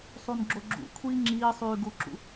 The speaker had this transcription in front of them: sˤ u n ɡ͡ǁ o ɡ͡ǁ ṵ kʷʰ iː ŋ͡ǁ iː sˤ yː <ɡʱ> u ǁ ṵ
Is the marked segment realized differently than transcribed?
yes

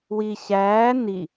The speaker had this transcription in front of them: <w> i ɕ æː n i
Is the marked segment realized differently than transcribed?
no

